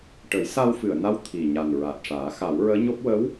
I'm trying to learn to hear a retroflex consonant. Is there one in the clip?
yes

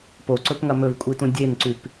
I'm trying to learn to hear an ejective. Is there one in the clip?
yes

